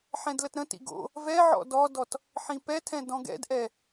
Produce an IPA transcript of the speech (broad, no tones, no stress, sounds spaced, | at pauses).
ħ ɛ̃ d l ə t ɾ ə̃ t ḭ ɡ o̰ | v ɛ ʕ ɔ̰ d ɔ d ɔ t | ħ ĩ p ɛ tʰ ɛ̃ d ɔ̃ ɡ ɛ̰ d ʔ ɛ